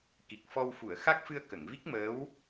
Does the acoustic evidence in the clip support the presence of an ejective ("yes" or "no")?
no